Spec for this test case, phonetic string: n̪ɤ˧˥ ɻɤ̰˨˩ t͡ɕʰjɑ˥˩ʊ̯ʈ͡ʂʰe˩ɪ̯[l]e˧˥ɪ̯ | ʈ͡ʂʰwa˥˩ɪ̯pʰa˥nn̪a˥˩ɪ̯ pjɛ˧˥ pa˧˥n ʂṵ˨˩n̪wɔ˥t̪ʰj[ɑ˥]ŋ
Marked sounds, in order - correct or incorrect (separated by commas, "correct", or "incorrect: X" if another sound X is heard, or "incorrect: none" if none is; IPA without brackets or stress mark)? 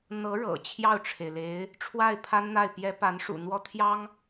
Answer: correct, correct